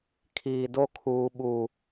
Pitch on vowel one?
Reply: low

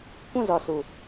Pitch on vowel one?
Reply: falling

